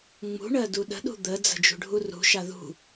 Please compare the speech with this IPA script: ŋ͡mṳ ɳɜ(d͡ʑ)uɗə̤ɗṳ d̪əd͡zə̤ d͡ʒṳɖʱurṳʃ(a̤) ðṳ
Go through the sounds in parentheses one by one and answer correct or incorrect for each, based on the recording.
incorrect: d, incorrect: a

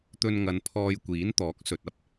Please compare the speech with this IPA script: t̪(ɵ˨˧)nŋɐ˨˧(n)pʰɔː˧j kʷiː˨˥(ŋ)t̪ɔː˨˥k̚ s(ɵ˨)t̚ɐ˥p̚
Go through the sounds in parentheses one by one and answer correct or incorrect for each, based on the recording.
incorrect: ɵ˧, correct, incorrect: n, correct

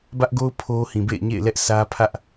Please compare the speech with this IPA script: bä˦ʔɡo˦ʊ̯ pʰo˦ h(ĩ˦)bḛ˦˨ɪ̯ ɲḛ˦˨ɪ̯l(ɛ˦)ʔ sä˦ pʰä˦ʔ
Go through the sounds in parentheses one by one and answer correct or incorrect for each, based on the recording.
incorrect: ĩ˨, correct

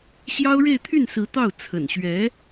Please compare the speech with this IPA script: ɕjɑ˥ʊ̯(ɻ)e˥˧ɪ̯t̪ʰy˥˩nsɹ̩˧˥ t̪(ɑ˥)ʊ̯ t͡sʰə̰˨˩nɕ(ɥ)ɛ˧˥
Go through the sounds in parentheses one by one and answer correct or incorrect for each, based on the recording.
correct, incorrect: ɑ˥˩, correct

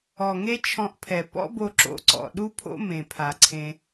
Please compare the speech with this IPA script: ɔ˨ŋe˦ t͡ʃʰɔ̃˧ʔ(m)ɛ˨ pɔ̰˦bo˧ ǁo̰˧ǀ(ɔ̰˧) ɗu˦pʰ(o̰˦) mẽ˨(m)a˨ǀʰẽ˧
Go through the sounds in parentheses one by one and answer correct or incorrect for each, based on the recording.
incorrect: pʰ, incorrect: ɔ̰˨, correct, incorrect: pʰ

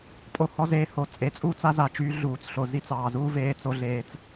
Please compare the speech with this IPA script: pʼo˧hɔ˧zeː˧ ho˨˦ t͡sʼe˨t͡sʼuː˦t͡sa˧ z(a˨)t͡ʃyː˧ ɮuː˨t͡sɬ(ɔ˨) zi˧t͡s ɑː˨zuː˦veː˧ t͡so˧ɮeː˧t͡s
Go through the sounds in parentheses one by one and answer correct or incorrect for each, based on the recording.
correct, incorrect: o˨

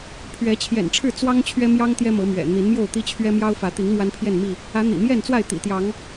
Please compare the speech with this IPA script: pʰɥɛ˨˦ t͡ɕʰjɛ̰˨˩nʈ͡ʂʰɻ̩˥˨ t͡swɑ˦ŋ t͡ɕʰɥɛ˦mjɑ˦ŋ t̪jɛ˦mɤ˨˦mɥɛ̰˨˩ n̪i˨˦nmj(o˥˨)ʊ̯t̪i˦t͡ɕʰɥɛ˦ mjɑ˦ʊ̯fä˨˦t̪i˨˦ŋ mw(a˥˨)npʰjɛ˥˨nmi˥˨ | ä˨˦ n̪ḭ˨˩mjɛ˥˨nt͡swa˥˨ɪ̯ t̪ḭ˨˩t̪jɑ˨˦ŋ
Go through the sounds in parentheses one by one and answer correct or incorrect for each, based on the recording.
correct, incorrect: a˦

